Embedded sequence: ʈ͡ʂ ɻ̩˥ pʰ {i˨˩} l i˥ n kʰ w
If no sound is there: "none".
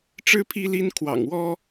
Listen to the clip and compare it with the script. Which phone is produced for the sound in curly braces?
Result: i˥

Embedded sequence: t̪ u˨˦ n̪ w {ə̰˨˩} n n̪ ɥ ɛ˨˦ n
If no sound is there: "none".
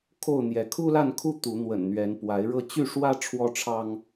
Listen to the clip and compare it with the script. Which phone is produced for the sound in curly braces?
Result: ə̰˨˩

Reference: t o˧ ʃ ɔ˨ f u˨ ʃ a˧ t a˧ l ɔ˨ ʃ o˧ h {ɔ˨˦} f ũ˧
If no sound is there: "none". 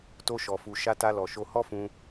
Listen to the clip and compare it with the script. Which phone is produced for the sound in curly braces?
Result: ɔ˦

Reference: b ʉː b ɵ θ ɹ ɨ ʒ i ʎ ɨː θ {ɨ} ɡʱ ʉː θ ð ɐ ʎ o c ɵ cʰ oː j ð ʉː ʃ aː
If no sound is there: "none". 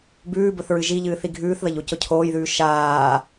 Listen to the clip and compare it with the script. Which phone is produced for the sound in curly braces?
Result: i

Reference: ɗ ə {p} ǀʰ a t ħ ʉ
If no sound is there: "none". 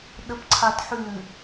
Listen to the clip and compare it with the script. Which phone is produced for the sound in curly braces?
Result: p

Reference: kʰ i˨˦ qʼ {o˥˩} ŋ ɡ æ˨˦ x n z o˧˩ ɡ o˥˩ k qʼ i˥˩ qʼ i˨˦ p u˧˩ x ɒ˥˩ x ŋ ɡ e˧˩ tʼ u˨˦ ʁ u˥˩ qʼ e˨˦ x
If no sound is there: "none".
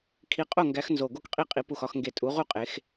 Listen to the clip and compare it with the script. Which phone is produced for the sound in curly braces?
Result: o˥˩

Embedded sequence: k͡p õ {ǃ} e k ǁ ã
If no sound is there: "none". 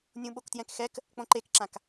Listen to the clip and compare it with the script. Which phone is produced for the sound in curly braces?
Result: ǃ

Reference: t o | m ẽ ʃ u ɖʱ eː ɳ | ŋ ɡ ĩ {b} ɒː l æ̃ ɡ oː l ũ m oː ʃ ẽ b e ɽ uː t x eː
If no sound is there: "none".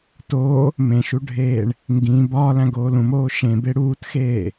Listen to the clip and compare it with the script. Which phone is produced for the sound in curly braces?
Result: b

